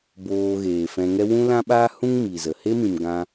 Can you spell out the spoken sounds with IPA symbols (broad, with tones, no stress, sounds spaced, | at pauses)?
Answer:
b oː˧ ɣ eː˨ f ɛ̃˧ ŋ ɛ˦ w ũ˦ l ã˦ ɓ aː˦ h ũ˦ ŋ m i˨ z ə˨ h e˦ m ĩ˨ m ɡ ã˧